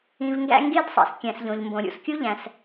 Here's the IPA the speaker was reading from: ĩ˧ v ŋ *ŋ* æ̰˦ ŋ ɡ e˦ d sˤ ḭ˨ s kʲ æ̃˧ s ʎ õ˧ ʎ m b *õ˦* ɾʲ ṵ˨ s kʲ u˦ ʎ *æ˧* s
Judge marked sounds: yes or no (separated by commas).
no, no, no